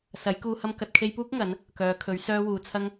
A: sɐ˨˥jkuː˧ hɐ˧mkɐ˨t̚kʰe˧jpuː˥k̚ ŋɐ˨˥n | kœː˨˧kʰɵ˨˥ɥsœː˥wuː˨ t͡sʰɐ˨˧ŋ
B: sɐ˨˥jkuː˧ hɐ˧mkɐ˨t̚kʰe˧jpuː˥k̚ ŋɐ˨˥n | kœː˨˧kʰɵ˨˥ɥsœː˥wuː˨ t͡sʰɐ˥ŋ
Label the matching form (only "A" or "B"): B